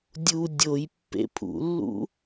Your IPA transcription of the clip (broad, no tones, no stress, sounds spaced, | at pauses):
dʲ u dʲ o j pː ḛ pʰ ṵ lː ṵ